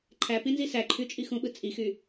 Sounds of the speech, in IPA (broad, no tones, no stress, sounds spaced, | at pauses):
ǃʰ æ p ĩ n z i s æ ǃʰ y t͡ʃʼ i x ũ ɓ ɯ t͡sʼ i x y